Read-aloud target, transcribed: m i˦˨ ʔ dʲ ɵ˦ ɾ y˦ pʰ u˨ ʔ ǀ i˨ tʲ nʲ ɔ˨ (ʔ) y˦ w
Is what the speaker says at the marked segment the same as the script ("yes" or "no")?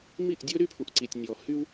no